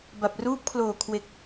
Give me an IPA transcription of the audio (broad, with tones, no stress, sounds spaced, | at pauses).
b a˨˩ p̚ r uː˦˥ p̚ kʰ l oː˨˩ kʰ w e˨˩ k̚